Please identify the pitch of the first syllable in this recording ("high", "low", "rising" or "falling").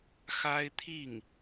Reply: high